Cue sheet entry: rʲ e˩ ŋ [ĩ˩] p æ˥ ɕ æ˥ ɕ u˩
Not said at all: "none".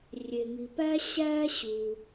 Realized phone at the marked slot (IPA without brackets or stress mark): i˩